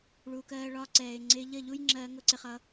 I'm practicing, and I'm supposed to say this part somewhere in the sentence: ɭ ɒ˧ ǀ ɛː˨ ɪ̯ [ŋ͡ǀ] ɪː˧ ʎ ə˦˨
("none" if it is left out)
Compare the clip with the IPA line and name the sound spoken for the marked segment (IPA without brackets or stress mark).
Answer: ŋ͡ǀ